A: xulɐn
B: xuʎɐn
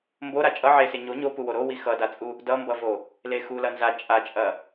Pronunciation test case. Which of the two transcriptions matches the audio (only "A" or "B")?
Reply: A